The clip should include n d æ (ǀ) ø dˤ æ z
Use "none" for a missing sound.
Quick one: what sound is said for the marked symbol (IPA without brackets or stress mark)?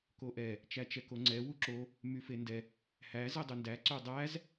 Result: ǀ